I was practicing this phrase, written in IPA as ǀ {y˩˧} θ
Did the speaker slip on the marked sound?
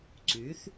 no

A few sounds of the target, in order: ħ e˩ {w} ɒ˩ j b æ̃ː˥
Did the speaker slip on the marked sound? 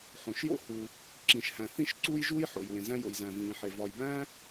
yes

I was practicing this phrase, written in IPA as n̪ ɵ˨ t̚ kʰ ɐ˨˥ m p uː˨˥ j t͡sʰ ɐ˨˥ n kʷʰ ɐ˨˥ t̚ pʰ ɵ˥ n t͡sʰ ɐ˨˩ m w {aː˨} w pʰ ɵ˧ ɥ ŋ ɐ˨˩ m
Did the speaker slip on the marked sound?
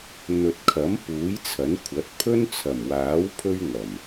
yes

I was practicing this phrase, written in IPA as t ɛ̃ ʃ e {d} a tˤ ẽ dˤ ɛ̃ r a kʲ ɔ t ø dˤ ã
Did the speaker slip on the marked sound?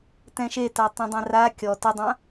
yes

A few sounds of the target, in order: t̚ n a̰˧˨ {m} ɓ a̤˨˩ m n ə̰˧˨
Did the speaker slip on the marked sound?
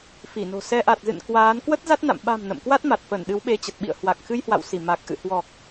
no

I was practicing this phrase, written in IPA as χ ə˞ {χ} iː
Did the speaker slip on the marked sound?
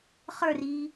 yes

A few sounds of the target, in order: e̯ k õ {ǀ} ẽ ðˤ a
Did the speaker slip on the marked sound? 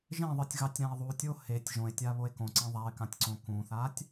no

